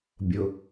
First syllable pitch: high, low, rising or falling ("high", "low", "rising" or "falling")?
low